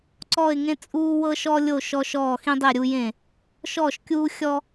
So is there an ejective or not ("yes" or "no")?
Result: yes